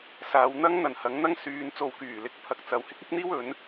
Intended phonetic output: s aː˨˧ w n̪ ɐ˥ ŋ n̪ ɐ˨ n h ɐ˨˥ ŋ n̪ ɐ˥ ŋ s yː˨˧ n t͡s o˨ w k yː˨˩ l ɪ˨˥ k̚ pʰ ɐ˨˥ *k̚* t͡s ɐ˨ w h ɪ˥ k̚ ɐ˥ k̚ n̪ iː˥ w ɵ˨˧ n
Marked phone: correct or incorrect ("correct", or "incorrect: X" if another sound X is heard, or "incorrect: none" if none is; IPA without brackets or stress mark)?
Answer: correct